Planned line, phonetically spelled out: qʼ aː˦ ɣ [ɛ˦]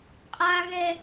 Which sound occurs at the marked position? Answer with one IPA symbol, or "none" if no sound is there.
ɛ˦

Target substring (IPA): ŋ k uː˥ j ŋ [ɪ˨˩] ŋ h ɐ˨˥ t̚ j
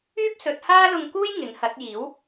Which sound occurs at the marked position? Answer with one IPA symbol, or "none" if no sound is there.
ɪ˨˥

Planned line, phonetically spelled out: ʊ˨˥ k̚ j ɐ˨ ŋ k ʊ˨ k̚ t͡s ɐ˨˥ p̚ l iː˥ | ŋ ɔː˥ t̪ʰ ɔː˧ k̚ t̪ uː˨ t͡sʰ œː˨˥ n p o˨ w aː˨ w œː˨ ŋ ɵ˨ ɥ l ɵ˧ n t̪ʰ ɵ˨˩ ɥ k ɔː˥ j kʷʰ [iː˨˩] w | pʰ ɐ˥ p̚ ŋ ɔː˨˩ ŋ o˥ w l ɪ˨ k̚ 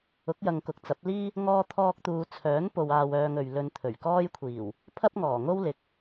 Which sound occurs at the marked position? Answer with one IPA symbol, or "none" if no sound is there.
iː˨˩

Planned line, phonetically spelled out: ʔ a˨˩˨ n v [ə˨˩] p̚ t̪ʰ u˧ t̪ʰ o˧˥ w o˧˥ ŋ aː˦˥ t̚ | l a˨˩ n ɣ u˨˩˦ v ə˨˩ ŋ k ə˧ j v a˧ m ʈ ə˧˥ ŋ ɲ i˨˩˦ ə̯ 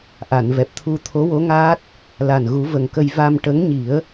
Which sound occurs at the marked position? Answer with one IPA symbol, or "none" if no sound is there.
ɛ˨˩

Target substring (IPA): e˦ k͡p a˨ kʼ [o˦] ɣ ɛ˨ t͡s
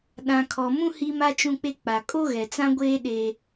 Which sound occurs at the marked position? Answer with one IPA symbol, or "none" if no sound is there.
o˦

